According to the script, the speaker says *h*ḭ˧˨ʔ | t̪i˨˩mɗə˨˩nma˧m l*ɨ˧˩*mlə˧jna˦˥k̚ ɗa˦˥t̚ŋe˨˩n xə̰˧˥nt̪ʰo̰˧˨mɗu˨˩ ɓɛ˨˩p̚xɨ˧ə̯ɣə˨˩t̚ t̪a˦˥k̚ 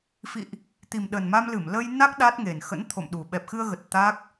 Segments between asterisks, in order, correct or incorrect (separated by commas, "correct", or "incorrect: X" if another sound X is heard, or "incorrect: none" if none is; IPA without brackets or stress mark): incorrect: f, correct